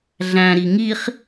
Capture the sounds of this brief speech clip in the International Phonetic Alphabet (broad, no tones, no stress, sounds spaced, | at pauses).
ɮ æ̃ ɾ i ŋ i χ